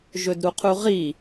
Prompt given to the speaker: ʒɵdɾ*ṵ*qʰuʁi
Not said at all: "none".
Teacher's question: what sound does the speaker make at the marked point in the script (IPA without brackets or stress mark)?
u